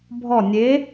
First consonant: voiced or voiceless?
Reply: voiced